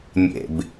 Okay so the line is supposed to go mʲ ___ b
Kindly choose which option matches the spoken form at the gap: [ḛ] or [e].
ḛ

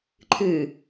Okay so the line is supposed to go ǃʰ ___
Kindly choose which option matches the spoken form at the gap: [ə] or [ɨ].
ɨ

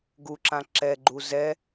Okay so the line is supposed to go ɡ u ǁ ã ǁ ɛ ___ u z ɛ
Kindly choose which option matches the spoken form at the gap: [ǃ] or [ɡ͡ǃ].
ɡ͡ǃ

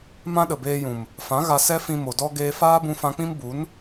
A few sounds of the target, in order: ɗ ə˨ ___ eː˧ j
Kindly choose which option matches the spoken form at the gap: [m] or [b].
b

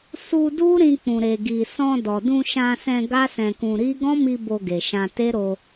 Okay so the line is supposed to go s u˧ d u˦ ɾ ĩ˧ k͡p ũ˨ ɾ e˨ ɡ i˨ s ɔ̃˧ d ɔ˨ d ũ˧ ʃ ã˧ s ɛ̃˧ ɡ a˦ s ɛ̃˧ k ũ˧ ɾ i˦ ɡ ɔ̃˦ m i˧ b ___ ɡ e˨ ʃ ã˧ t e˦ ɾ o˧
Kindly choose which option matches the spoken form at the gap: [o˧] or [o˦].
o˧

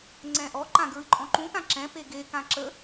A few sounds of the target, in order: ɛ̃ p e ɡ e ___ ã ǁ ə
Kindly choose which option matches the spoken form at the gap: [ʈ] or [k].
k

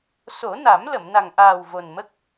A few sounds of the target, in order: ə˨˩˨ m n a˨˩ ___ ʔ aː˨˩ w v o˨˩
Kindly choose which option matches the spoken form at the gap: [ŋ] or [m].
ŋ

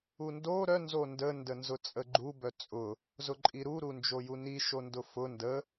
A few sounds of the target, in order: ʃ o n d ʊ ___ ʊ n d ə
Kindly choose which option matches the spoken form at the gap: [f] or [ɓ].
f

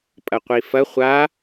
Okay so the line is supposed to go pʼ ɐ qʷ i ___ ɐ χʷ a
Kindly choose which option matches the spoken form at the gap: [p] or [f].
f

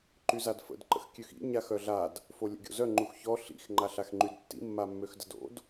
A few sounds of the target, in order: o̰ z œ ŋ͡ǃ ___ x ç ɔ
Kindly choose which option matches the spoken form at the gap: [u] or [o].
u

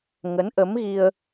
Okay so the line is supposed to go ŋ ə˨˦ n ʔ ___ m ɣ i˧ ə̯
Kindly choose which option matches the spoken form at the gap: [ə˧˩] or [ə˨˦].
ə˨˦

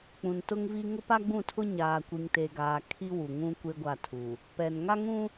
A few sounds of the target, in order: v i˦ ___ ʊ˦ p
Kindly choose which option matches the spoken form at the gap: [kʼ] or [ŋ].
ŋ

